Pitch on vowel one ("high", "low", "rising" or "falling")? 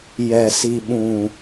low